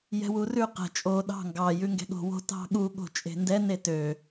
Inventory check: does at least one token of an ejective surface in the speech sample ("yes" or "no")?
yes